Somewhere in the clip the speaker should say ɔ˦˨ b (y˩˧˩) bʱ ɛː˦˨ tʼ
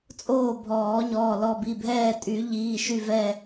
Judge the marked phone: incorrect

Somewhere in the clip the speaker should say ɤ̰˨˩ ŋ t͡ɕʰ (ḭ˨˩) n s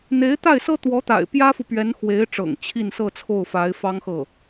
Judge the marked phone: incorrect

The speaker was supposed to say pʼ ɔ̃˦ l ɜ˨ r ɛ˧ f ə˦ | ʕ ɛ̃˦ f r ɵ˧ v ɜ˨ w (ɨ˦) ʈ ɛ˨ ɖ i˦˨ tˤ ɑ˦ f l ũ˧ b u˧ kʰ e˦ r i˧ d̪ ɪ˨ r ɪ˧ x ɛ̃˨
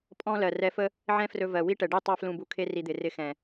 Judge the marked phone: incorrect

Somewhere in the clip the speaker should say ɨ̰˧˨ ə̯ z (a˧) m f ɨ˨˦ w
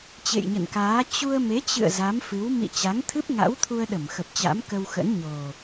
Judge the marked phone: incorrect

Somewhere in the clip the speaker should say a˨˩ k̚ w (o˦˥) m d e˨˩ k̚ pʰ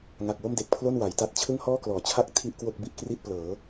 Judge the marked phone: incorrect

